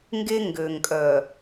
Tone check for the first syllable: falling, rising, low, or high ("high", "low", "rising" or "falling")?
high